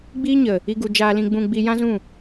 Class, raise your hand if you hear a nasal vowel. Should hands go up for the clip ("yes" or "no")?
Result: yes